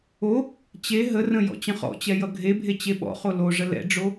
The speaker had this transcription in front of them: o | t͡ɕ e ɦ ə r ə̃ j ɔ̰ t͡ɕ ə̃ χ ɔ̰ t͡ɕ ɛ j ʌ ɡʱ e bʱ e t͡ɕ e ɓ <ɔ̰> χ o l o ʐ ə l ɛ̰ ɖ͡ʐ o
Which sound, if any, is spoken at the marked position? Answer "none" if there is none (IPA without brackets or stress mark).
ɔ̰